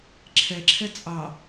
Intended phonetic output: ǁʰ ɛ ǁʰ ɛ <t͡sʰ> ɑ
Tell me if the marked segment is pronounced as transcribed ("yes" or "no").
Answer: no